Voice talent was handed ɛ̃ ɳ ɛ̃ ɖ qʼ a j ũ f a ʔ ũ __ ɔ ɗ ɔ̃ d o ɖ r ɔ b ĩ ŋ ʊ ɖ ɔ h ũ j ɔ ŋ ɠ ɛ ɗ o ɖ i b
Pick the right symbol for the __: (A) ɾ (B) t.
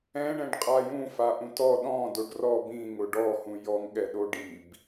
B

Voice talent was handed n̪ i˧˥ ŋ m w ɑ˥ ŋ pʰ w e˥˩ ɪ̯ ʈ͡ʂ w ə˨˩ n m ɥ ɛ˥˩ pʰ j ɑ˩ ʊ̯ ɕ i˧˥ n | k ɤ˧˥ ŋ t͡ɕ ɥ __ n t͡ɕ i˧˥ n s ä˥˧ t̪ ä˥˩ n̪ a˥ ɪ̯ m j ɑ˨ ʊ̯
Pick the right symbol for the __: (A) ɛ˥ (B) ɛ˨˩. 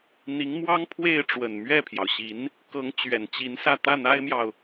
B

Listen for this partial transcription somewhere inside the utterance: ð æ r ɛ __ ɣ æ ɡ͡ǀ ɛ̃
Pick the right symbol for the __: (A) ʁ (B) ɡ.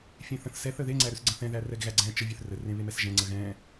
B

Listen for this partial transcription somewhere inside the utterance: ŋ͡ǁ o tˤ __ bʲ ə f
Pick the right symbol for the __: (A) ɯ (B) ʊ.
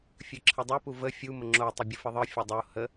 B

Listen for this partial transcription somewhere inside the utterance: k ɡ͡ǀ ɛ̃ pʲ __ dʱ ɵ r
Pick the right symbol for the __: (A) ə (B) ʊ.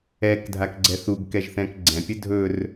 A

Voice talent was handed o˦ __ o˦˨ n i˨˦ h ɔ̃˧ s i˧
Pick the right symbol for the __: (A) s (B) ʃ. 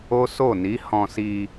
A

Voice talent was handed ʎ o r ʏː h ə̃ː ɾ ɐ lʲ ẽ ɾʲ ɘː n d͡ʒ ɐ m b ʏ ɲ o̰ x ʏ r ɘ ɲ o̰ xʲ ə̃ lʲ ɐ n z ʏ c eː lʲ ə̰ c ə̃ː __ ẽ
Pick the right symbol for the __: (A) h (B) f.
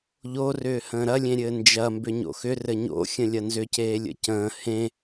A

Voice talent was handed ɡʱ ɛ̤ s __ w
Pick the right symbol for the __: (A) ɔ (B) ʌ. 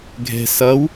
B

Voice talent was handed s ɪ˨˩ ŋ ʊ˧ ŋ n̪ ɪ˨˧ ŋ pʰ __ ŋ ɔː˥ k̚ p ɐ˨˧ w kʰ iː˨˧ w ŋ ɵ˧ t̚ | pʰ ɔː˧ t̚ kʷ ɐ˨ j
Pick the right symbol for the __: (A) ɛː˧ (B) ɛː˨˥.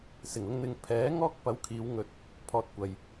B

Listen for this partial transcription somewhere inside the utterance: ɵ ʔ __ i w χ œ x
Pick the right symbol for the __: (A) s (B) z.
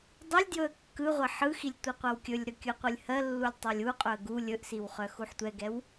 A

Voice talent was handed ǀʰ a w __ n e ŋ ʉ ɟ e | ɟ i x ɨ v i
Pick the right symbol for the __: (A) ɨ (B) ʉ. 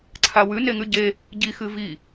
B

